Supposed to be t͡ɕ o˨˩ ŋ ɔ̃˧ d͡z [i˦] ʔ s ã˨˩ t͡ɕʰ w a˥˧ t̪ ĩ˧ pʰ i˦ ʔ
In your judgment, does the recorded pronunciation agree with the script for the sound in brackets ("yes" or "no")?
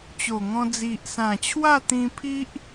no